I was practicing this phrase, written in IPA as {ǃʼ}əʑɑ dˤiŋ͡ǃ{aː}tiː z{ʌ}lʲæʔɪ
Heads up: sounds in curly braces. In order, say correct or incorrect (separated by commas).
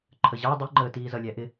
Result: incorrect, incorrect, correct